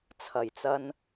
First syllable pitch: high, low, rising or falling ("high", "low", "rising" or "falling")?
low